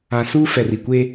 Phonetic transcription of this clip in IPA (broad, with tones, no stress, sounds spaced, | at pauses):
ã˨ s uː˦ f ɛ˨ r i˨ kʷ eː˦